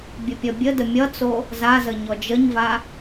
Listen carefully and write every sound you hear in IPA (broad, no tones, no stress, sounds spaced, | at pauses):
bʲ ə pʲ ʌ bʲ ə d ə mʲ ʌ t͡s o | z a z ə ɲ ɔ d͡ʒ ə ɲ v a